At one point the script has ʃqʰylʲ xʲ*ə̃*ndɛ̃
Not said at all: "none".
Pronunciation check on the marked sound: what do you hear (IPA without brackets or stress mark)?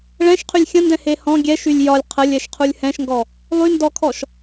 ə̃